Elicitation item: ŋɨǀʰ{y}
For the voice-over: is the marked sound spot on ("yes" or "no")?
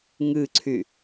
yes